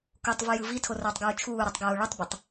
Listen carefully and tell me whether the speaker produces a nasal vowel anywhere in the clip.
no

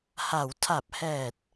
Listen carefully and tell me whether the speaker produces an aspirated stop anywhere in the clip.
yes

